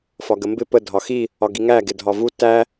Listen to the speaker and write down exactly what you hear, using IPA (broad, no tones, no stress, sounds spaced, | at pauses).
f ɒ ɡ ə m b ɪ p ə dʱ ɒ x i | ɒ ɡ i ŋ æ ɡ ɪ dʱ ɒ v u t æ